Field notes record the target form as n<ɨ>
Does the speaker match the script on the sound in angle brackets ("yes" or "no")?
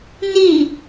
no